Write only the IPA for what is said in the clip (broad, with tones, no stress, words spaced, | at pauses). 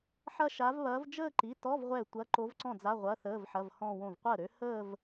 ħɐ˥˧ʃa˧˥vβɐː˧˥v d͡ʒəː˥˧ǃi˩˧˩tɔ˧˥˧v ʁʷɛ˥˩tʷɐ˧˥˧ ǃo˧˥vǀɔ̃˥˩d͡za˧˥˧ ʁʷɐ˧˥˧ θəː˧˥˧vħɐ˧˥˧vhɔ̃˥˧wõ˥˩v qʷəː˥˩ɾø˧˥ həː˥˧v